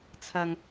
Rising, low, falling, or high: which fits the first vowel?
high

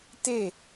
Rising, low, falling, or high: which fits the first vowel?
falling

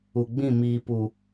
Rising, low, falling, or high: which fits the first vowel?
low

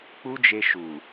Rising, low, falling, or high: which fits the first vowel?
high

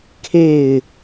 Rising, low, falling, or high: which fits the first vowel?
falling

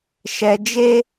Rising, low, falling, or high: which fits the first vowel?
low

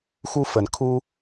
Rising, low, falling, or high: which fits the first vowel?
high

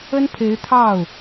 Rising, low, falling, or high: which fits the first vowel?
high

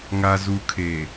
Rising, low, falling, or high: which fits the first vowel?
low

